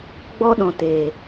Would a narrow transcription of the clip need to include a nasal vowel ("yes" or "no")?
yes